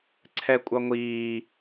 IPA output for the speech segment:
ǀʰ ɛ kʷʼ ʌ ŋʷ iː

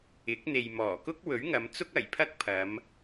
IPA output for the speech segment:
ɪ˨˥ k̚ n̪ e˨ j m ɔː˨˩ k ʊ˥ k̚ w ɵ˨˥ ɥ ŋ ɐ˨˧ m t͡s ʊ˥ k̚ ɐ˨˩ j pʰ ɐ˥ k̚ pʰ ɐ˨˧ m

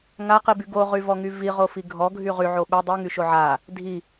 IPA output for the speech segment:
ŋ a q i b y ɡ o ʁ y v ɔ ŋ y v i ʁ o f i ɡʱ ɔ ɡʱ y ʁ y ʕ o ɓ ɛ dˤ y ŋ y ʃ o ʕ a | dʱ i

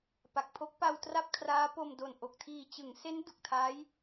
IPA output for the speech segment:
p a˨˩ k̚ pʰ o˦˥ k̚ p a˧ w t r a˥˩ p̚ kʰ r aː˦˥ p o˧ m d o˨˩ n ʔ o˨˩ k̚ tʰ iː˨˩ t͡ɕ ɯ˩˦ ŋ s e˦˥ n d u˨˩ k̚ tʰ a˦˥ j

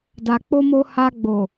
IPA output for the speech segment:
d a˧ k͡p o˦ m o˦ h a˧ ɡ͡b o˨

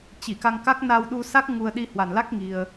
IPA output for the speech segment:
t͡ɕ i˧˩ k a˧ ŋ k a˦˥ k̚ n a˧ w ɗ u˧ s a˦˥ k̚ ŋ u˧ ə̯ ɗ i˧ h w a˨˩ n l a˦˥ k̚ ŋ i˧ ə̯

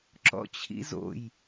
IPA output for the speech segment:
ǁ ɔ̰ t͡ɕʰ ḭ z o̰ j

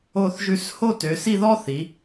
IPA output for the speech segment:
o˧˩ θ ʒ ʉ˧˩ s h o˥ t ø˩˧ s i˥˧ ð ɔ˥ θ i˩˧

